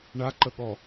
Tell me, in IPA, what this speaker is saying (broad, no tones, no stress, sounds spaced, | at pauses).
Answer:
ɳ a ǃ ə ɠ ɔ